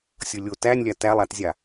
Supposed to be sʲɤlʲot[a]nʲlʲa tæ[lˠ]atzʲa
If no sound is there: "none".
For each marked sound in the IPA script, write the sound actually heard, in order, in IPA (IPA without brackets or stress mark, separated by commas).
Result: æ, lˠ